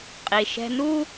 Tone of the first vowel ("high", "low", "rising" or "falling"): low